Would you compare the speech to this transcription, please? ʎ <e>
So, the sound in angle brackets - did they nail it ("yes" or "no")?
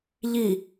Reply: no